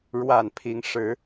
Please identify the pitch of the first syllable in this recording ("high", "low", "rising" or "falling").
low